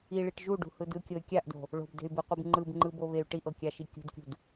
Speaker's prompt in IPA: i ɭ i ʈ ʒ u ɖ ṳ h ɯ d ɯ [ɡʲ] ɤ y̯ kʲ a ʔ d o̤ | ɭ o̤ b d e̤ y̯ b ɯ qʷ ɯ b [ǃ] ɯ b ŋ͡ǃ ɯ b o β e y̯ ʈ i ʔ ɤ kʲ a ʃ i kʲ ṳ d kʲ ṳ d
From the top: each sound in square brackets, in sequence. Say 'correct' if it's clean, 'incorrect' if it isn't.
incorrect: kʲ, incorrect: ŋ͡ǃ

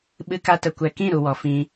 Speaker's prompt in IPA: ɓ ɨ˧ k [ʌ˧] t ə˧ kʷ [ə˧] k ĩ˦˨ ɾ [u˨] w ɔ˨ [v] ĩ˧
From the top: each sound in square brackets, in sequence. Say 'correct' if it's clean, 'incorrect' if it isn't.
incorrect: a˧, incorrect: ɛ˧, correct, incorrect: f

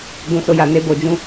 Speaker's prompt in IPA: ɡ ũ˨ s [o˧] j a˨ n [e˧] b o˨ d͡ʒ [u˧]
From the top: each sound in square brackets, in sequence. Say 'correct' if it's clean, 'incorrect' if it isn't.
correct, correct, incorrect: ũ˧

